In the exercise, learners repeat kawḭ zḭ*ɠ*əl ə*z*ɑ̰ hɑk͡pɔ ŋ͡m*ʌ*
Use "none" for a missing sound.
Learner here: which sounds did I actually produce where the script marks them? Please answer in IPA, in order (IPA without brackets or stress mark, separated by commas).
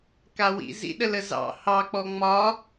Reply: ɗ, z, ɒ